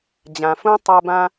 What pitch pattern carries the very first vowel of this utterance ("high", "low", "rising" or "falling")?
low